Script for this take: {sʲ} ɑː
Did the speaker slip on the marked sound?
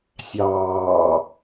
no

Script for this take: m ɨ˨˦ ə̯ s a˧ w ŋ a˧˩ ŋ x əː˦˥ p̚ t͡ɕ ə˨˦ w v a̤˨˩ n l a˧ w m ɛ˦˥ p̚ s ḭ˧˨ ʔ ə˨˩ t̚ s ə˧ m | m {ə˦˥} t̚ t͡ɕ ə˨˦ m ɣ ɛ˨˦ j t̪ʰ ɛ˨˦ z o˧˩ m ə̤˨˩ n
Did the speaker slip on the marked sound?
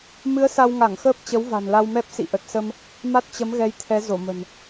yes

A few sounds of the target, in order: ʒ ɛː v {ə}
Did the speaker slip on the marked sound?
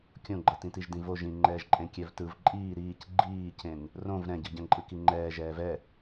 yes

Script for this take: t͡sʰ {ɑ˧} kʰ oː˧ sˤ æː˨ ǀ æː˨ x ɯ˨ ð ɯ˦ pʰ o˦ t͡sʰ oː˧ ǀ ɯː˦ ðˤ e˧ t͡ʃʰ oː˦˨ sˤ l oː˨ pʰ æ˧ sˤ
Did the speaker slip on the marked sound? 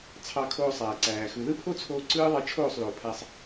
no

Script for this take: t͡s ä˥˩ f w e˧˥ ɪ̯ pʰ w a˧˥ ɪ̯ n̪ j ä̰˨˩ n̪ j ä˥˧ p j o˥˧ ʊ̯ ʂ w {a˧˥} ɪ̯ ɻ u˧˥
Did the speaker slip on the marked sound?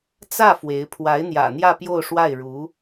yes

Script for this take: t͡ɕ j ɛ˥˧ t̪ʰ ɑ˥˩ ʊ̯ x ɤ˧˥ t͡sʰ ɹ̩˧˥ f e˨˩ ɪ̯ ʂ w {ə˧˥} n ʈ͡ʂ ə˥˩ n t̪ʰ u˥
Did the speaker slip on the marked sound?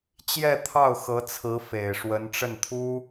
no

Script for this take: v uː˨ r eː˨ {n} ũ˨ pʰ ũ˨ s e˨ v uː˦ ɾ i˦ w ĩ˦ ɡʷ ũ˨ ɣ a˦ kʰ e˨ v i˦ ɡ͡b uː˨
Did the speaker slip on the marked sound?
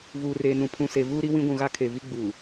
no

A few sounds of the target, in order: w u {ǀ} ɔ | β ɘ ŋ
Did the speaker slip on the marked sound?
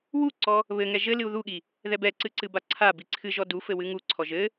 no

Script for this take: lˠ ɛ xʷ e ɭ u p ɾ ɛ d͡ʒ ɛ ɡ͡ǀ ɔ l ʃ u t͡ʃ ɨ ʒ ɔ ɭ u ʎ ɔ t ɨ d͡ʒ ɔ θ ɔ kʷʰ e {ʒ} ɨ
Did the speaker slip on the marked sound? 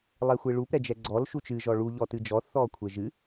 no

